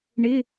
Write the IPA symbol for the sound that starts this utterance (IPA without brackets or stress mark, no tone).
ɳ